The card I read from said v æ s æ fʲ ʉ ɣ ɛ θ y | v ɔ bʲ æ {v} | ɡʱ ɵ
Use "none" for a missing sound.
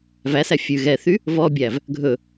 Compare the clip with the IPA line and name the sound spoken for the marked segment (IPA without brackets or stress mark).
v